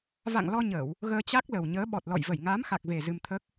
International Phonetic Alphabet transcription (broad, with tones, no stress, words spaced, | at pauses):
va̰˧˨ŋlɔ˧ɲəː˧˩˨w | ɣəː˧t͡ɕa˦˥k̚lə˨˩w ɲəː˨˦ɓɔ˨˩t̚lɔ̰˧˨j və˧˩jŋaː˨˦mxa˨˩k̚ve˨˩ zɨ˧mt̪ʰəː˦˥k̚